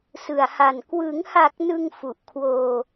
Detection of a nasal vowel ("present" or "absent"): absent